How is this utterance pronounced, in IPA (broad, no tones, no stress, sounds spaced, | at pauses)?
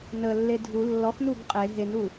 n ə lː e dʱ u lː ɔ x n u ɡ qʼ e ɦ e n u